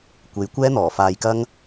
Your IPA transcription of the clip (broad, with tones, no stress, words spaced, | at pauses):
kʷe˨˥jkʷɛː˥n̪ɔː˨˩ faː˧jkɐ˥ŋ